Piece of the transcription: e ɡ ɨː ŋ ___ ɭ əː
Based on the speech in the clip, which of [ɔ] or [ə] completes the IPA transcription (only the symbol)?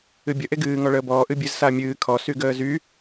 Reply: ɔ